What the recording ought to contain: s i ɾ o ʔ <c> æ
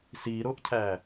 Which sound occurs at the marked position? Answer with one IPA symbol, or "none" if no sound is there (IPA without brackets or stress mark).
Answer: cʰ